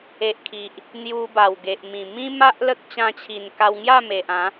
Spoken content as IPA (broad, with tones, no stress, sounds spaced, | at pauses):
e˨ ʔ kʰ i˨ ʔ | n̪ j u˧ b a˨˩ w ɡ e˨ ʔ m ĩ˨˩ m ĩ˦ m a˦ ʔ l ə˦ k̚ t͡ɕ ã˧ t͡ɕʰ i˨˩ n k a˧ w ŋ j a˥˧ m e˨ ʔ ã˨˦